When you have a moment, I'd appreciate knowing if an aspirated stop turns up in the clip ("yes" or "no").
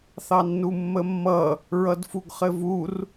no